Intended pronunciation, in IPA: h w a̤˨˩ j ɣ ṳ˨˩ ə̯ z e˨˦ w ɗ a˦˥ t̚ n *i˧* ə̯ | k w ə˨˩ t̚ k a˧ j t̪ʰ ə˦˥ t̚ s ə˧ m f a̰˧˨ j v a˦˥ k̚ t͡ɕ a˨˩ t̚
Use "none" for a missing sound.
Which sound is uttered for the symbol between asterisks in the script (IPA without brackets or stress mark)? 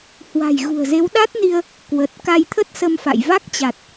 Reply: i˧